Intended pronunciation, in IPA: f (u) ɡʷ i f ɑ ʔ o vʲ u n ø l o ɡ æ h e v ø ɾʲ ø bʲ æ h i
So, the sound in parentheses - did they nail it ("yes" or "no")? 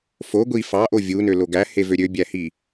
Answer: no